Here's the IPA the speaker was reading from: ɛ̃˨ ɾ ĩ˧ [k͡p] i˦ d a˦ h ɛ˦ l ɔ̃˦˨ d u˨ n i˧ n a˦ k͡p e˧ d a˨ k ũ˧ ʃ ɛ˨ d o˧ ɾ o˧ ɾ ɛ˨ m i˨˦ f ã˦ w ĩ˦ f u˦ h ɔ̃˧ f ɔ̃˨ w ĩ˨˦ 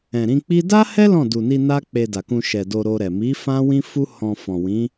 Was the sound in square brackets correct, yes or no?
yes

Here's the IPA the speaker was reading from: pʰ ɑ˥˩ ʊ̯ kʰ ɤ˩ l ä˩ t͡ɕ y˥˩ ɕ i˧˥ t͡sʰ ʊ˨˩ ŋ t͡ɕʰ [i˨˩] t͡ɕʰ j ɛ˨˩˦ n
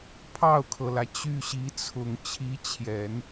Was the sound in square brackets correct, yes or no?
no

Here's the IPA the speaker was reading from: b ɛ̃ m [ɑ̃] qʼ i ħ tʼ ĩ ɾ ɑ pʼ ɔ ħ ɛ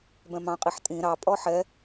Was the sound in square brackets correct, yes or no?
yes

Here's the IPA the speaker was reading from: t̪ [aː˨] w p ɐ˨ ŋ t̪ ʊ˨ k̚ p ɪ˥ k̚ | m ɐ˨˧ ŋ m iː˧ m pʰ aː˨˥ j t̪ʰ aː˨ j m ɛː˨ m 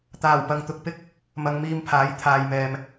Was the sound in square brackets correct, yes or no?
no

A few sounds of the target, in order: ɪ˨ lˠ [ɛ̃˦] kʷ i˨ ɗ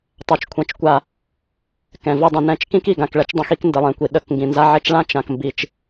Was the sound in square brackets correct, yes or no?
no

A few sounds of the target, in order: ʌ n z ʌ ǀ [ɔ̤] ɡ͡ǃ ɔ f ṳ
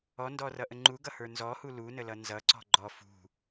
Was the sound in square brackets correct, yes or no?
yes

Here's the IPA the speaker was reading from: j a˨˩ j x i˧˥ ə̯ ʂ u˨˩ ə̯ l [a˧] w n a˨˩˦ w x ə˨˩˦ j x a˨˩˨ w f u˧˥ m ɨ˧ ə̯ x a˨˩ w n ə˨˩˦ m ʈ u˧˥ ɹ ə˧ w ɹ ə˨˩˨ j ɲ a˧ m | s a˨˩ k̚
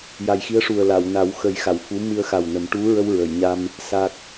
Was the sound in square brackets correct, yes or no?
no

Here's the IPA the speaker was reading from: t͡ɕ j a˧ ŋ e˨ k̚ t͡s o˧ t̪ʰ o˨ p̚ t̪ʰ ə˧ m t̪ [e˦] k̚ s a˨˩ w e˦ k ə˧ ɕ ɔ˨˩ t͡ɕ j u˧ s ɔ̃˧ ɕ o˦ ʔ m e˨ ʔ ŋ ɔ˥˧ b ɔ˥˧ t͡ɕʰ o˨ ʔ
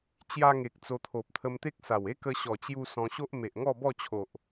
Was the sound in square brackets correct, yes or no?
yes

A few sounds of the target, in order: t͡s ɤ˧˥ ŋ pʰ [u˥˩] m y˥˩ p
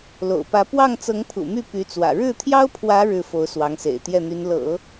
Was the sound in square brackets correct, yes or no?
no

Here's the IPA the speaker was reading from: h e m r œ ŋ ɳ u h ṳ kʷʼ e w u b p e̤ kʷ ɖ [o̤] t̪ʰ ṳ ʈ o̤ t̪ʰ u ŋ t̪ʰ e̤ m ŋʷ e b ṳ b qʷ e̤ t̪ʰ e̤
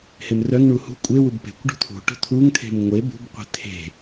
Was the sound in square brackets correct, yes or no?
no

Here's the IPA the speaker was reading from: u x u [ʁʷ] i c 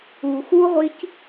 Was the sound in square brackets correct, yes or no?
yes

